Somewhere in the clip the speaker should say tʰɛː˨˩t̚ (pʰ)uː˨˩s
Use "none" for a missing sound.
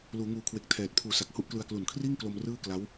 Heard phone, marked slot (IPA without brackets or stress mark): pʰ